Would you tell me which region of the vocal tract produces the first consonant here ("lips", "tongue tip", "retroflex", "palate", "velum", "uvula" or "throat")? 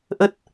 throat